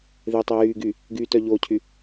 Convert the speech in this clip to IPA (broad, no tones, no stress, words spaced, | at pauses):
ðetˤi jyː ɡy | ɡytœ ʎocʰy